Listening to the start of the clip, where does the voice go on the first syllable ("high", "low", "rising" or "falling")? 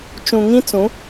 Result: low